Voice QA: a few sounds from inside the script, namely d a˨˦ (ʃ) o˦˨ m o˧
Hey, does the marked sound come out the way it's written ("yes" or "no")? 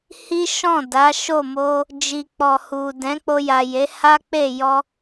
yes